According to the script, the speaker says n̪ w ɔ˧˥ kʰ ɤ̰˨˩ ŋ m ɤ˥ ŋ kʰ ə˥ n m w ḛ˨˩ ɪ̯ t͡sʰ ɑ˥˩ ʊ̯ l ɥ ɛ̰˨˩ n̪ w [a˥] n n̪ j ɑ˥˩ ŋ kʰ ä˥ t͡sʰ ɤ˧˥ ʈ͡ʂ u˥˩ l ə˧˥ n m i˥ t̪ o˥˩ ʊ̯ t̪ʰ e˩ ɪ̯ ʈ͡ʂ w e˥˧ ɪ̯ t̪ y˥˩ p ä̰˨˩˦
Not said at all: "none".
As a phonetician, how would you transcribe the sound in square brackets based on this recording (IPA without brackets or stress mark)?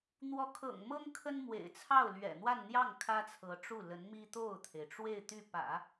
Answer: a˥˧